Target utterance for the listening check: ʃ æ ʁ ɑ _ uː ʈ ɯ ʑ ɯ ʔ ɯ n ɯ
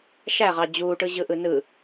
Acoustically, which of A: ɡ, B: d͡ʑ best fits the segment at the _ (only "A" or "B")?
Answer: B